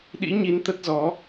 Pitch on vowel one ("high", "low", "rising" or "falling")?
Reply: rising